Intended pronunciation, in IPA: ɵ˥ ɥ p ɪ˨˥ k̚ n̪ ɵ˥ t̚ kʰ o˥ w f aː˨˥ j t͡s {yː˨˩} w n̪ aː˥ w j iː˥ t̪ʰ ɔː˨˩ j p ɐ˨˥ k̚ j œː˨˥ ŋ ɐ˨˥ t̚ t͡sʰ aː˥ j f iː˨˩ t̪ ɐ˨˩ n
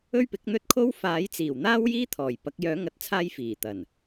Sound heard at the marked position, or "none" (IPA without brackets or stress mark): iː˨˩